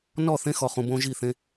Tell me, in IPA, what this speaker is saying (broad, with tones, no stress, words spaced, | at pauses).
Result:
nɔ˦˨θẽ˦xɔ˨χũ˨ bõ˦ʒi˦˨θẽ˦